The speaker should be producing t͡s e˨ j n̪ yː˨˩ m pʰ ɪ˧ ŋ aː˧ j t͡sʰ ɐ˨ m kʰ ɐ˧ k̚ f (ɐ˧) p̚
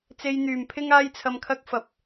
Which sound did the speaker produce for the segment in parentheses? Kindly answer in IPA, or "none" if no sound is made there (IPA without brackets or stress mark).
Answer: ɐ˨˥